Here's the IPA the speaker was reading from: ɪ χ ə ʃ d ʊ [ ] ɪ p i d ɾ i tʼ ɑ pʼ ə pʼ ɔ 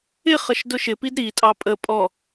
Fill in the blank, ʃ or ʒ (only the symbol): ʃ